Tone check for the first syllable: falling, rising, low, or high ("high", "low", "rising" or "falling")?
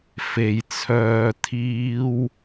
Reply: low